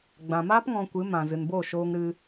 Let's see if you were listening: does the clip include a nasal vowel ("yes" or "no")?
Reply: yes